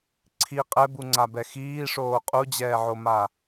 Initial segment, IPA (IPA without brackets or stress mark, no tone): ǀʰ